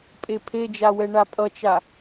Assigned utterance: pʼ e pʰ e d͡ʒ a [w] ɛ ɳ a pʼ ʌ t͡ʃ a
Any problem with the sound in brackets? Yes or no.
no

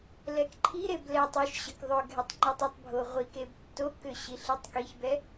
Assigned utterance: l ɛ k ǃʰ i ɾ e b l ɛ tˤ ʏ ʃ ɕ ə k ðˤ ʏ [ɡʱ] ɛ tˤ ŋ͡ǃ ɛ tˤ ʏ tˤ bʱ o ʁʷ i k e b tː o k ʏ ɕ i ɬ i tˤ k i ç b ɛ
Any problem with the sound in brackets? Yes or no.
no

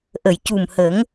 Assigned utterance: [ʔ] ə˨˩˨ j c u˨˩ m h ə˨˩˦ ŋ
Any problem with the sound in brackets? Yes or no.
no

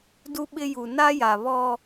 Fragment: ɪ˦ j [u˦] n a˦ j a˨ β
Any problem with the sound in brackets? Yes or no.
yes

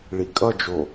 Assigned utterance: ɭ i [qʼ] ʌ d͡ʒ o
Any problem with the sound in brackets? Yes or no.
yes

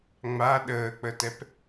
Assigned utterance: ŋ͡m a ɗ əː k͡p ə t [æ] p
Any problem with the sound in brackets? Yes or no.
yes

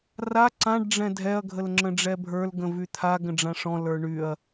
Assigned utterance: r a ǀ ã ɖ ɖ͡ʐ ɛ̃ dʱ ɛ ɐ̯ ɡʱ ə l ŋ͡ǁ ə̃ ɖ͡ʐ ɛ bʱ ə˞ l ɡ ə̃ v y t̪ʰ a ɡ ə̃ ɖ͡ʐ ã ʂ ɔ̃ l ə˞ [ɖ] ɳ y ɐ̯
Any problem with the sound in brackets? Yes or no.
yes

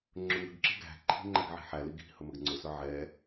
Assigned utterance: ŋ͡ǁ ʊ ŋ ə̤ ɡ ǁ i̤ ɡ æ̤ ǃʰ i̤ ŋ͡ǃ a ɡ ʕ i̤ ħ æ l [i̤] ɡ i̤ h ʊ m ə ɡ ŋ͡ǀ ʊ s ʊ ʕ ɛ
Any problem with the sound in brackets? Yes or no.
yes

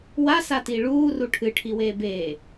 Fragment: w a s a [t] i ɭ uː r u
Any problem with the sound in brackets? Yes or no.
no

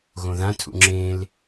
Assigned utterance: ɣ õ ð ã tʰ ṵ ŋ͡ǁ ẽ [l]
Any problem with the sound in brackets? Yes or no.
no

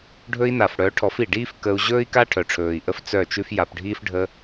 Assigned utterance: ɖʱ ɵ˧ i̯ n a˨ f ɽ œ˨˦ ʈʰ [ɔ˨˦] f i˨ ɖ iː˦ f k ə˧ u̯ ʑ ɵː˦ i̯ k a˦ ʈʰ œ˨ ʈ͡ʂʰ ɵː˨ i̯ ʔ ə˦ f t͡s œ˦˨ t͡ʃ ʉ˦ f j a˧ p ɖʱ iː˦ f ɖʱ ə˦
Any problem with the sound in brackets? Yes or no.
no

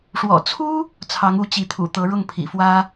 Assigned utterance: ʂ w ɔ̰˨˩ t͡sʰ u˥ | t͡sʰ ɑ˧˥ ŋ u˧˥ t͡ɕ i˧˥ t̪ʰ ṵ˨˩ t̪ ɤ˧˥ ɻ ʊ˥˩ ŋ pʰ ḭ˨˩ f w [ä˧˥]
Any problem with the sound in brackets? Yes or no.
yes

